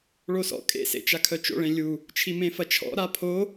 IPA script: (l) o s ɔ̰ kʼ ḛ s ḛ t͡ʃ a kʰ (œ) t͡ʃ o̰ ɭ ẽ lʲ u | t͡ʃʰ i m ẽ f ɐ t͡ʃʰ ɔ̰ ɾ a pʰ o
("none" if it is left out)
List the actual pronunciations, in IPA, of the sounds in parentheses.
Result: ɭ, œ

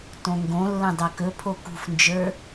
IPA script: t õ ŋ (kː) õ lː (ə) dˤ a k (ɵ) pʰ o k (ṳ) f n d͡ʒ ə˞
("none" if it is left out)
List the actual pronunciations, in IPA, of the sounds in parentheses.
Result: ɡ, ə̃, ɵ, ṳ

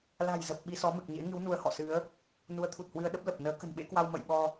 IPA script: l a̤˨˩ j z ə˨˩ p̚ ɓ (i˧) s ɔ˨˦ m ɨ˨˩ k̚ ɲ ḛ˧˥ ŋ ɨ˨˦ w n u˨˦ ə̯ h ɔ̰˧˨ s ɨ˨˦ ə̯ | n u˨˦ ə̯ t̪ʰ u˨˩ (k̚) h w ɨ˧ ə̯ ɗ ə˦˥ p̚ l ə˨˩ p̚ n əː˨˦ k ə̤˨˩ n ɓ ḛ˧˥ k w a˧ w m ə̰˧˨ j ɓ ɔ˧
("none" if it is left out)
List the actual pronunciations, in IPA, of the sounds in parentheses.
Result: i˧, t̚

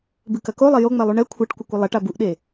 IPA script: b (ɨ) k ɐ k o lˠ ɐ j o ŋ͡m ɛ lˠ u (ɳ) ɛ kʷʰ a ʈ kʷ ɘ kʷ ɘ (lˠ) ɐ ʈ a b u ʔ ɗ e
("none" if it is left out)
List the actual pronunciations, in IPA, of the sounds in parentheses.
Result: ɨ, ɳ, lˠ

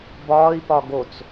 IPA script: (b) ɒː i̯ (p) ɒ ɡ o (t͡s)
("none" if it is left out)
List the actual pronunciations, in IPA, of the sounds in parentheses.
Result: b, p, t͡s

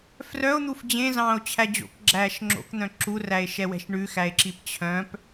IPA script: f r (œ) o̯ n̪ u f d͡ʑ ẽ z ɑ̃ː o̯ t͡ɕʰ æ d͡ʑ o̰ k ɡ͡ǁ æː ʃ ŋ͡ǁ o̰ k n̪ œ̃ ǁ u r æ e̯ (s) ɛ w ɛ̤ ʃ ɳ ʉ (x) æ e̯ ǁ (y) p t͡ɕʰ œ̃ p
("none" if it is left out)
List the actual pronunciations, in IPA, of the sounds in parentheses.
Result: œ, ʃ, x, i

